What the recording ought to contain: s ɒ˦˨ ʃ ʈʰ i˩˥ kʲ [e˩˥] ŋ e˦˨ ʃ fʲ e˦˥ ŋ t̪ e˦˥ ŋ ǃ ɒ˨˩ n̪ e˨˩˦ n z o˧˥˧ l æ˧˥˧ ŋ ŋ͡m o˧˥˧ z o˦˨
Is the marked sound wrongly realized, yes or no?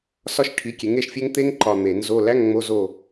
no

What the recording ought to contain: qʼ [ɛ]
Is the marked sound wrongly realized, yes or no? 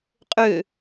yes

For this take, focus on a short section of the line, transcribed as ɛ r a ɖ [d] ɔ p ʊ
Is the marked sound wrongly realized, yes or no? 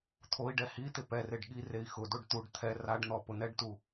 yes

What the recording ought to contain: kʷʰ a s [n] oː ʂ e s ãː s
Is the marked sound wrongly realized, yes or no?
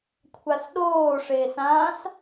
yes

